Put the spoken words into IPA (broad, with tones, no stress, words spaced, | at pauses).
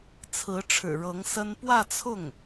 t͡sʰɹ̩˧˥ ʈ͡ʂʰɻ̩˨˩ɻɤ˧˥ŋ sə˥n pwä˥˧t͡sʰʊ˥˩ŋ